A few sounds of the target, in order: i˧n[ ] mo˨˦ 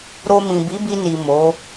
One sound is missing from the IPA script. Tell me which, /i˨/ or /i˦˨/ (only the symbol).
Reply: i˨